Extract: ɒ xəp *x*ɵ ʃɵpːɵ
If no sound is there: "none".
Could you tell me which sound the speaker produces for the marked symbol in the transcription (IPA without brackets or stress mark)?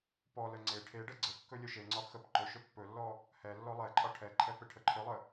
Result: ǃ